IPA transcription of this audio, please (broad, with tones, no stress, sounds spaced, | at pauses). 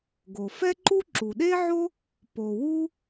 ɡ o˩ f ɛ˥ ǃ u˥ ǁ u˩ ɗ e˥ ʕ o˥ | p o˩ w u˥